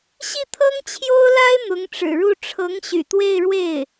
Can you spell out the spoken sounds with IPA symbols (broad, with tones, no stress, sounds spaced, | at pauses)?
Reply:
ɕ i˥˩ t̪ʰ ɤ˥ ŋ t͡ɕʰ j o˥ ʊ̯ l a˥ ɪ̯ n̪ ʊ˧˥ ŋ ʈ͡ʂ ɻ̩˨˩ ɻ u˥˩ ʈ͡ʂʰ ɤ˧˥ ŋ ɕ y̰˨˩ t̪ w e˥˧ ɪ̯ ɻ w e˥˩ ɪ̯